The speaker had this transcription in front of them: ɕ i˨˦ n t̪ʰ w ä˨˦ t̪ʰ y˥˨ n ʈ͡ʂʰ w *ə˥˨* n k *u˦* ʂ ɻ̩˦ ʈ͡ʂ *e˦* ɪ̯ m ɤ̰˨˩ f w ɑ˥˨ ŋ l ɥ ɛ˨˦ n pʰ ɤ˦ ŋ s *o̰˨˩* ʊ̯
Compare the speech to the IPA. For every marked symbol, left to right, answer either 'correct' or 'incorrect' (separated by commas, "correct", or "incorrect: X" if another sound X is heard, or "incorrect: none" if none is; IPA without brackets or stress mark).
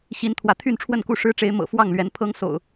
correct, incorrect: u˥˨, incorrect: e˨˦, correct